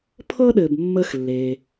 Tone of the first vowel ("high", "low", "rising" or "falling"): high